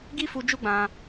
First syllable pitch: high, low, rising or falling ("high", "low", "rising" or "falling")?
high